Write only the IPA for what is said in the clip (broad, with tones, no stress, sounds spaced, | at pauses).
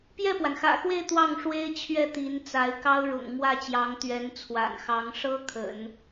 p j ɛ˥˩ p w a˩ n x ä̰˨˩ x w e˥˧ ɪ̯ t̪ w ɑ˥˩ ŋ ʂ w e˥ ɪ̯ t͡ɕʰ ɥ ɛ˥˩ t̪ i˧˥ n t͡s a˧˥ ɪ̯ k ɑ˥ ʊ̯ ɻ ʊ̰˨˩ ŋ m w ä˥˩ t͡ɕ j ɑ˧˥ ŋ t̪ ɥ ɛ˧˥ n t͡sʰ w a̰˨˩ n x ɑ˧˥ ŋ ʂ ɤ˥ kʰ ə̰˨˩˦ n